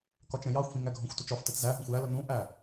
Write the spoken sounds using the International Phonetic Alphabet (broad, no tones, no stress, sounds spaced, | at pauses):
k ɒ t͡ʃ ɛ̃ j ɑ xʷ f ĩ ŋ æ ɡʱ ɔ̃ xʷ t u t͡ʃ ɒ f t ɛ t͡s z æ ɦ ũ xʷ j æ l ə n ũ ʔ æ